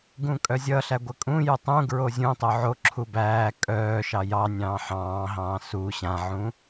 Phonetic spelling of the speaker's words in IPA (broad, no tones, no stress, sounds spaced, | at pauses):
ɡ ũ kʼ œ zʲ ʌ ɬ æ ɡʷ ə kʼ ũ j u tˤ ũ ɡ ɹ o zʲ ũ tˤ o ʕ o ǁʰ u b æː kʼ œː ʃ ɑ j ɑ nʲ ɑ̃ː ħ ɑ̃ː ɦ ɑ̃ː s u ɕ ã ʕ ũ